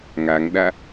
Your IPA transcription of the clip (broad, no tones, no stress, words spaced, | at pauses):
ŋaŋɗa